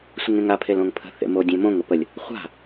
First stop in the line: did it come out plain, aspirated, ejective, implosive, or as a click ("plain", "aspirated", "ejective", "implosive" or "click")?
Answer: aspirated